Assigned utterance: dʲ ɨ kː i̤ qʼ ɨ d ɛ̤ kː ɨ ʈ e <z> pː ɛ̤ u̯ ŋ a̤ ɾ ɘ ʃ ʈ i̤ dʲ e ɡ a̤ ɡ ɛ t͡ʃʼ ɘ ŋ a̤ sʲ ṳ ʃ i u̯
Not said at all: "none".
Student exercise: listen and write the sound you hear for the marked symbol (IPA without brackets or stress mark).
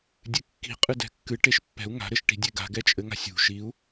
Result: ʃ